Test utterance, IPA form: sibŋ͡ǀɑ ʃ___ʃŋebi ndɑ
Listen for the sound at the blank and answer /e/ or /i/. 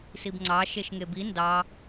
e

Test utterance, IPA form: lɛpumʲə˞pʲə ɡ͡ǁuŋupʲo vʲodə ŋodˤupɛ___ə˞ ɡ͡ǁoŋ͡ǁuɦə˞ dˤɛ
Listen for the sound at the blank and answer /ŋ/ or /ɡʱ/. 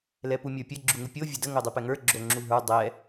ŋ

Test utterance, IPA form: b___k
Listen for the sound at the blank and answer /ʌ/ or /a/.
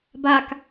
a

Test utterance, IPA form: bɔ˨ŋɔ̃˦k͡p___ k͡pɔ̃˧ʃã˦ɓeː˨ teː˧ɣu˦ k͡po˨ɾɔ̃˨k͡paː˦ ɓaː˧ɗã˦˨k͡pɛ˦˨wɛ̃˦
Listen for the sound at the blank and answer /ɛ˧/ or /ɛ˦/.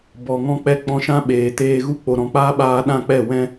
ɛ˦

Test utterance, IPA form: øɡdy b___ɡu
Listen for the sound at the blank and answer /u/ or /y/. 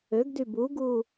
u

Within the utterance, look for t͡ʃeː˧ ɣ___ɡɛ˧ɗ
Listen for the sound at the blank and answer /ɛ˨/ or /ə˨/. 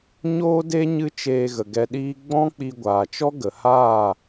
ə˨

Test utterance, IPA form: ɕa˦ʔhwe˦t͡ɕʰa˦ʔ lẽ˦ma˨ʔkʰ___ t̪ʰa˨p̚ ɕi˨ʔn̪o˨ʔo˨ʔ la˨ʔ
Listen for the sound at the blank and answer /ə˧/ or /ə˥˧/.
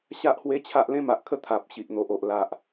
ə˥˧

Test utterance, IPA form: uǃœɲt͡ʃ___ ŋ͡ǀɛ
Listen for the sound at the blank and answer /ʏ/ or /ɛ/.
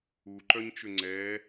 ʏ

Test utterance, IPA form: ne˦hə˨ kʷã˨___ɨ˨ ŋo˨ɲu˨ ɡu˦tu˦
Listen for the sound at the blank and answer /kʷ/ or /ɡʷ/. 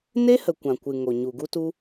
kʷ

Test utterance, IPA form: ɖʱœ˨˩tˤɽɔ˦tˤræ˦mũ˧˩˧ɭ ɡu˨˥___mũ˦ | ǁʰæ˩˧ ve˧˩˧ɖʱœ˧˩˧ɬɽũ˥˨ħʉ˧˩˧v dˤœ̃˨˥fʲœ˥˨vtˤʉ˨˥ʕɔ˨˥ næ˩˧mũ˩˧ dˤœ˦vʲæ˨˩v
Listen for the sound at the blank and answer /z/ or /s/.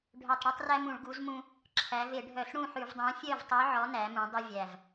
z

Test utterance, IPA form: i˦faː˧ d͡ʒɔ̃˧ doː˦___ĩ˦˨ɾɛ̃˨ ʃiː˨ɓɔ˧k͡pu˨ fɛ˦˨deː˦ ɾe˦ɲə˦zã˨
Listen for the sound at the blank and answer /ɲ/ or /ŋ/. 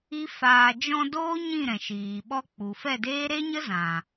ɲ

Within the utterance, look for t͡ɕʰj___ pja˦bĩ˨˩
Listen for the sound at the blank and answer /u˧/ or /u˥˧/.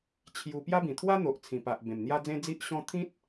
u˧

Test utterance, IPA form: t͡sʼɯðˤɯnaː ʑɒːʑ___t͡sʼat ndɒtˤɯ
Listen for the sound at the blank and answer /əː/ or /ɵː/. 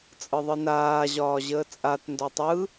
əː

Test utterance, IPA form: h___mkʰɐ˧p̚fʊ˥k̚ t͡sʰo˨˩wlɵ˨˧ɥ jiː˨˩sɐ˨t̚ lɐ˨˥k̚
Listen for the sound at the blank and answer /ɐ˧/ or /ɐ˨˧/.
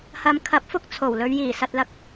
ɐ˧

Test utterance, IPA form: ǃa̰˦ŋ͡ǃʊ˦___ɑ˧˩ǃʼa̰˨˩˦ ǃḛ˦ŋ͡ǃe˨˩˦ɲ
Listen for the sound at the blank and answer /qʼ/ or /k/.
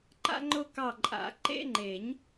k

